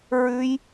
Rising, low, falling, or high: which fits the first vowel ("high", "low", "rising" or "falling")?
high